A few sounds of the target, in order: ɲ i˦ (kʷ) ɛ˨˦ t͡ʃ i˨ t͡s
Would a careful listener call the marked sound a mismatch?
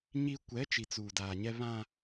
no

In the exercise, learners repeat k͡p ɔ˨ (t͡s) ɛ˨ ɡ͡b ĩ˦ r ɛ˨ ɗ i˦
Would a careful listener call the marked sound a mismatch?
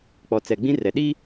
no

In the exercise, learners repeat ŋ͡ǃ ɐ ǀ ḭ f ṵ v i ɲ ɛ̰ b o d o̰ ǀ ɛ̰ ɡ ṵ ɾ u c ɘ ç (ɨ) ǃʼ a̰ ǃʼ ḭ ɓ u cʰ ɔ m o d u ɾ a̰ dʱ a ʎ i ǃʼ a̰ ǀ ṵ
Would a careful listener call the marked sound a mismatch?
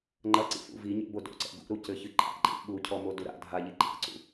no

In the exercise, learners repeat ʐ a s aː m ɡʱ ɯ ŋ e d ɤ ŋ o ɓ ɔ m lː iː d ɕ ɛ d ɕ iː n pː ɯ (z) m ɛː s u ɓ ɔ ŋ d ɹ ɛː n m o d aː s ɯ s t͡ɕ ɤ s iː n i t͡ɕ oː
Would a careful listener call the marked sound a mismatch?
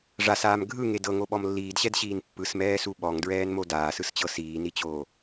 yes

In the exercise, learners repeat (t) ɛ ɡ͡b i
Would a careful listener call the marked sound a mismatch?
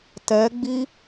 no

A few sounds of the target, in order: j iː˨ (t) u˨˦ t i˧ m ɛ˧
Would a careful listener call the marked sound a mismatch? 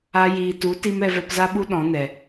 no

